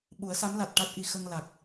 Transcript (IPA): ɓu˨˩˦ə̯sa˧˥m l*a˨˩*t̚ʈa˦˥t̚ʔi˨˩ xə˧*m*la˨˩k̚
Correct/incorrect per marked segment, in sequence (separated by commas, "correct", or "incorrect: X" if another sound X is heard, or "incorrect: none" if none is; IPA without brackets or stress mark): correct, incorrect: ŋ